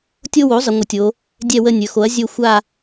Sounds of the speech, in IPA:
tʲo˦wo˩˥ zˤə˩˧ŋʷə˩˧tʲo˩˧ | dʲɛ˦˨wə˦˨ nʲɵ˩˧xo˩˥ɐ̯ zʲɵ˦˨ xʷa˦˨

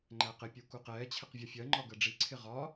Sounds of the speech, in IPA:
ŋ͡ǃæqɪpʲu kuqɛːt͡ɕʰɪq vʲɒfʲɜŋ͡ǃɒ ɡɜɖ͡ʐiǀʰɪ ʁɒ

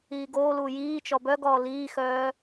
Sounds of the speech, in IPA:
iːɡoːluː jiːt͡ʃɔ bœɡɔː liːxœː

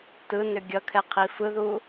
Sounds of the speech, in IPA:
tɯnʏ ɡʲʌkʰɛqʰi fɯðu

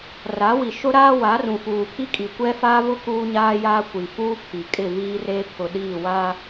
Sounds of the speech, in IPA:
ra˨˦wi˨ ʃʊ˦ɾaː˦wa˨˦rũ˨ fuː˨pʰi˦kʼi˨kʷɛ˦ faː˦vʊ˦ kuː˦ɲaː˦ jaː˦ kʷi˨fuː˦pʰi˨ kʼɪ˦˨ viː˦re˦ pʰʊ˨ɗiː˦˨waː˦

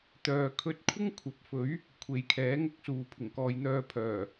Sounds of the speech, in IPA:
t̪œː˨kʰɵ˧t̚ kʷʰɪ˥ŋkʷʰɐ˨˥p̚fɵ˨˥ɥ | kʷʰe˨˧jkʰɛː˨˥ŋʊ˥k̚suː˨˧ pʰɪ˨˩ŋkɔː˨jn̪œː˧pʰœː˨˩

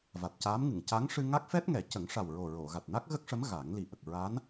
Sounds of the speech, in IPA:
va˨˩t̚caː˧˥mŋɨ˨˩˨ŋ ca˧˥ŋʂɨ˧ ŋa˦˥k̚fɛ˦˥t̚ŋɛ˨˩˦ cə˨˩˦ŋʂa˨˩wɹo˨˩ ɹo˨˩˨ ɣa˨˩t̚na˦˥k̚ɣə˦˥k̚ʂə˧˥m ɣa˨˩˦ŋli˨˩ ʔə˨˩k̚ ɹa˧˥n

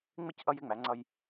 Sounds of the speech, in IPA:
ŋ͡mɪ˦c ʔʌ˦jɪ˦ŋ͡mæ˨˦ŋ͡ǀʌ˦j

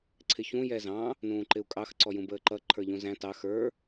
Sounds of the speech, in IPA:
ǀʰɪçũ jɛzɑ̃ | nũːǃɪu̯kʼɑx ǀɔjũbəːǃʌ ǃʰə˞ʎũzæ̃ tɑ xə˞

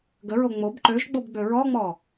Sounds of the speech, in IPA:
ɡəɹo ŋ͡mob ǃøʒɡ͡bobɡ͡bø ɹɔŋ͡mɔ

